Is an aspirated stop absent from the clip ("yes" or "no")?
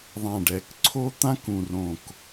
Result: no